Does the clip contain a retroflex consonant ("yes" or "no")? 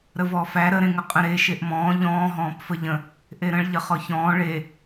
yes